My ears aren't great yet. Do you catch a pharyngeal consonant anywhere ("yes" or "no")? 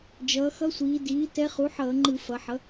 yes